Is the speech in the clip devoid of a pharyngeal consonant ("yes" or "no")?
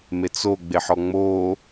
no